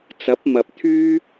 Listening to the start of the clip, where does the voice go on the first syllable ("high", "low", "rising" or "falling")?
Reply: rising